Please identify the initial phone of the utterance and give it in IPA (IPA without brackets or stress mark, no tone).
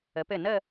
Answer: ə